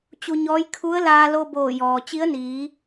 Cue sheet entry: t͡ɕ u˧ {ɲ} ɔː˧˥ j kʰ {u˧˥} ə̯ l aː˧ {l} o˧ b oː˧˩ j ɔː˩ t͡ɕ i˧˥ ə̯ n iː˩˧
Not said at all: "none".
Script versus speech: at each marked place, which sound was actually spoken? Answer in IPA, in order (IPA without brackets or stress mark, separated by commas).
ɲ, u˧˥, l